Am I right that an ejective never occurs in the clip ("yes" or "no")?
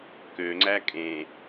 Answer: no